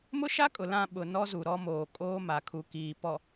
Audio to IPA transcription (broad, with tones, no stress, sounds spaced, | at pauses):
m ʊ˦ ʃ a˦ kʼ ʊ˨ l ã˦˨ ɓ ʊ˨ n ɔ˦ z u˨ ɾ ɔ˦ m oː˨ kʼ oː˦ m a˨ kʰ u˨ k iː˨ p ɔ˨